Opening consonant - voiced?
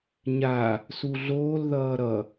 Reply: yes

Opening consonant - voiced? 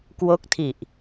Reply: no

